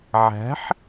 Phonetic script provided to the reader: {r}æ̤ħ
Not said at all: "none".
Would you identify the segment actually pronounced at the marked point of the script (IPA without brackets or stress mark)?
ʕ